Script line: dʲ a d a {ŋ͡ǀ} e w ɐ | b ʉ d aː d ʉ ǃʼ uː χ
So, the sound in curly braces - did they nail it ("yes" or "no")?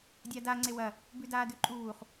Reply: yes